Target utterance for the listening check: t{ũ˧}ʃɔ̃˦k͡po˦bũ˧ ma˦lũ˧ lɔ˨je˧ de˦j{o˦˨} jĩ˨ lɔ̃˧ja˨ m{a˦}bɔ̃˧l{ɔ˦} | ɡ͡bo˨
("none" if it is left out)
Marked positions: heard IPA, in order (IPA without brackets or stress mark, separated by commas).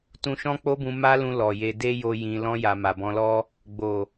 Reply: ũ˧, o˧, a˨, ɔ˦